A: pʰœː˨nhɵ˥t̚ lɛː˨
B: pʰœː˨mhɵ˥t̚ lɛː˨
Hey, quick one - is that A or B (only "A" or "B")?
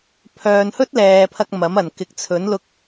A